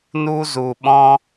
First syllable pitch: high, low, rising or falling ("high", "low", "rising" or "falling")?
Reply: high